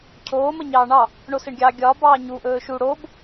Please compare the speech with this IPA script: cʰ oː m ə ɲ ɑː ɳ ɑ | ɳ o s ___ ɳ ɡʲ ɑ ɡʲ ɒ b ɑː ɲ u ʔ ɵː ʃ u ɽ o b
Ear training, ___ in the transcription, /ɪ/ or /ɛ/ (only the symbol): ɪ